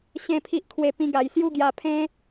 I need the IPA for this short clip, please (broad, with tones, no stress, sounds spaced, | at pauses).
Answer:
ɕ ẽ˦ pʰ i˦ ʔ kʰ w e˥˧ p ĩ˦ ɡ a˧ j s j u˥˧ ɡ j a˧ pʰ ẽ˦